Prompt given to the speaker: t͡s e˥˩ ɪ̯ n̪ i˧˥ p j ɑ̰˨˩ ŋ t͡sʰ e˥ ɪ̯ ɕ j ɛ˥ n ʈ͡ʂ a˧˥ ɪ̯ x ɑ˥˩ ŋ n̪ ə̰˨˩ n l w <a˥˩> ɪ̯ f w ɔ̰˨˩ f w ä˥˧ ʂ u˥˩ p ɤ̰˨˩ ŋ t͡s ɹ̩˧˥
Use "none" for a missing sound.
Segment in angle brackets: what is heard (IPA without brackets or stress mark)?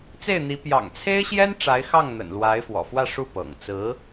a˧˥